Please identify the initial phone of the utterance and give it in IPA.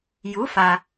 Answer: j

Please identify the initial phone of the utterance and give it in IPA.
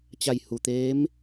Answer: t͡ɕ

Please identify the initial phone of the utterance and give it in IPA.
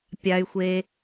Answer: pʲ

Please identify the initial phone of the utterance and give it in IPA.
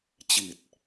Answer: t͡ɕ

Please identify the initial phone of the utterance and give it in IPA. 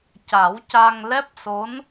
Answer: c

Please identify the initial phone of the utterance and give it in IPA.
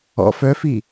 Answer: ɔ̰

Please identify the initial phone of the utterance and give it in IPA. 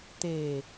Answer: t̪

